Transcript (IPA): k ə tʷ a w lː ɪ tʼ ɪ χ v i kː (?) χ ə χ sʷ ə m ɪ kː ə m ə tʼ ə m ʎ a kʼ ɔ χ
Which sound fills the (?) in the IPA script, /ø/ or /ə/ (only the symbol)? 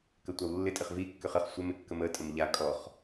ø